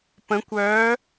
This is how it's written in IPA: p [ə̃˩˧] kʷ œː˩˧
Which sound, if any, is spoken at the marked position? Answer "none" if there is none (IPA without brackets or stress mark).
ə̃˩˧